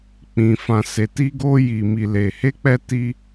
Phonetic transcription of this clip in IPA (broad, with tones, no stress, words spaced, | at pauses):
k͡pĩ˨fã˨ se˨ti˧ɡo˧ ji˨mi˨le˨ he˧k͡pɛ˧ ti˧